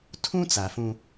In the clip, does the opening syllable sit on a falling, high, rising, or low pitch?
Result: high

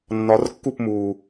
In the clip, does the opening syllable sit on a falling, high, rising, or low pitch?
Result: rising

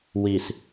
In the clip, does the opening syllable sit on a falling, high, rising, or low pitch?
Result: low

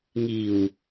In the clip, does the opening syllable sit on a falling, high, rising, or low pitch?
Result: low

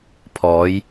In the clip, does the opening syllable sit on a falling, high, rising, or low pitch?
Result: rising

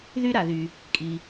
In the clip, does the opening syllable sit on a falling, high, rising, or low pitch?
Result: high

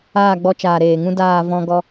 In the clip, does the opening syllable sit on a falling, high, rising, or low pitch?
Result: falling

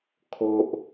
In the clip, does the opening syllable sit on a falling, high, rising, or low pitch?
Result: low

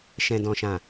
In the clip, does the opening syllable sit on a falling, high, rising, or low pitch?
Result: low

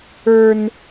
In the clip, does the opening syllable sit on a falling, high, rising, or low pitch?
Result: low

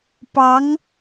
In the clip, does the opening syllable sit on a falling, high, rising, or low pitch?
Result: rising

